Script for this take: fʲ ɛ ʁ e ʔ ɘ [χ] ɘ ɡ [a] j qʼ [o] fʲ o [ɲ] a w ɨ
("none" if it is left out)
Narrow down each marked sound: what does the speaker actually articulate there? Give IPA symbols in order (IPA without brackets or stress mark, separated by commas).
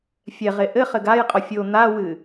χ, a, ɔ, n̪